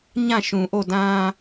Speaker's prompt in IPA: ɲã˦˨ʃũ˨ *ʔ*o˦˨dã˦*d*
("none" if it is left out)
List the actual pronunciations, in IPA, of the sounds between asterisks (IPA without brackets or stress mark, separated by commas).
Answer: ʔ, none